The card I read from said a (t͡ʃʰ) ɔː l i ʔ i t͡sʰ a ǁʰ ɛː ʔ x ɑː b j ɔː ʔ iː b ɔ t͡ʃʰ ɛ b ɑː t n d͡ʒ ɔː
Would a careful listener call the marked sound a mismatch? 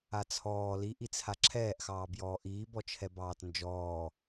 yes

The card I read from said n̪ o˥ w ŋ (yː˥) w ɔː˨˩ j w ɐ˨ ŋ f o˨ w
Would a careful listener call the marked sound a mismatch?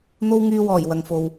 yes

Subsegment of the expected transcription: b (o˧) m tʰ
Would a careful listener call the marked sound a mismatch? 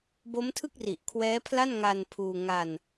yes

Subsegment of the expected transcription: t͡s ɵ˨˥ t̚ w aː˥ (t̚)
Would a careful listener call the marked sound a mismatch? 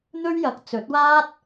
no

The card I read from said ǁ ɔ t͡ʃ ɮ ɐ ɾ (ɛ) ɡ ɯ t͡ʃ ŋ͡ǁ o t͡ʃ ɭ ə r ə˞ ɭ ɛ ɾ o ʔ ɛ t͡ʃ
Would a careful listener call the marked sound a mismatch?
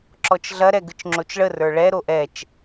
no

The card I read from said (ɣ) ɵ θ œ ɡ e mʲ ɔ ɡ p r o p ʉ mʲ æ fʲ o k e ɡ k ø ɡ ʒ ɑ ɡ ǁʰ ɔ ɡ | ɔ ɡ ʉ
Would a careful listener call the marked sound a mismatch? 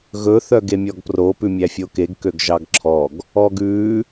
no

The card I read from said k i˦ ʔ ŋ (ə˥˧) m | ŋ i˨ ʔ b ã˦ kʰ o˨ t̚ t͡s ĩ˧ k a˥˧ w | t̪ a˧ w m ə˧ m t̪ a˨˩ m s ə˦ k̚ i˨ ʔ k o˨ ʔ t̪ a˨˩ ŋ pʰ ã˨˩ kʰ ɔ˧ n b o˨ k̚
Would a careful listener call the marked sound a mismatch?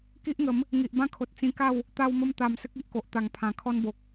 yes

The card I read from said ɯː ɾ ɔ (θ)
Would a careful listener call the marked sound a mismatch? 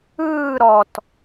yes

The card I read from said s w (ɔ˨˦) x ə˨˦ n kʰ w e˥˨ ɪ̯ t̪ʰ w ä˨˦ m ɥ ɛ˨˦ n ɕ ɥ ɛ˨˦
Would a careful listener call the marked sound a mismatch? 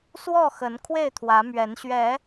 yes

